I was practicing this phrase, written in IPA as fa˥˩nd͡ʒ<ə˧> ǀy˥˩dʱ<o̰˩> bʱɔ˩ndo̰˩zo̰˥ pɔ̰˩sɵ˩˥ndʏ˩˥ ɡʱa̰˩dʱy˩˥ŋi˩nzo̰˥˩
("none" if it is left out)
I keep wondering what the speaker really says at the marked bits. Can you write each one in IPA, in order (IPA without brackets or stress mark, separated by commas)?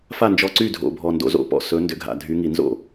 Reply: ɔ˧, o̰˩